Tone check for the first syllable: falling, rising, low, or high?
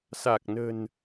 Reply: low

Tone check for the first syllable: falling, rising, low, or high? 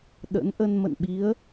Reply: rising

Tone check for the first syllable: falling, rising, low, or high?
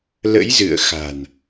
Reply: rising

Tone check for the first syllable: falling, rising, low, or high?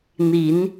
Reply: rising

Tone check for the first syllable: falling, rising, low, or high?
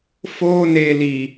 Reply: high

